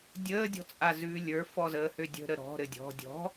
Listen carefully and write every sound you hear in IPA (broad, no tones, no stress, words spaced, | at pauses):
dʲəːdʲɔ̤t͡sʼazʉː lʲə˞fɔzəːhø dʲə̤ɾə ɾɔ̤ɾɘ dʲɔ̤ dʲɔ̤